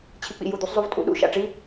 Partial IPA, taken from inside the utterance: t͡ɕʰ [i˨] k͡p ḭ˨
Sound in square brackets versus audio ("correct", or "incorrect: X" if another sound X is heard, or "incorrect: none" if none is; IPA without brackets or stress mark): correct